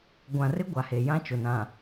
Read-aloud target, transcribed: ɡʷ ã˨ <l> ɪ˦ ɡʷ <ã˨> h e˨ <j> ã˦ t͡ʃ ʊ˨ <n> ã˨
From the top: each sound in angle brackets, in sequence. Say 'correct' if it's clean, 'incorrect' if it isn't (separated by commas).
incorrect, incorrect, correct, correct